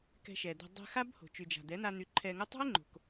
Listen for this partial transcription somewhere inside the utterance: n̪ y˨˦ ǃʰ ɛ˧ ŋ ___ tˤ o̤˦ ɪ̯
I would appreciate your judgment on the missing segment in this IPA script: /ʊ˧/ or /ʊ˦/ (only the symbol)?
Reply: ʊ˦